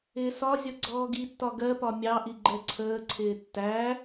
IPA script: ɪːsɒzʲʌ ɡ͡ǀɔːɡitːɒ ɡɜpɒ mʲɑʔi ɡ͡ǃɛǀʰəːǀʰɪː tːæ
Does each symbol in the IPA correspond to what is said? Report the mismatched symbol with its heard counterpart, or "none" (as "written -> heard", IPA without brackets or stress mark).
none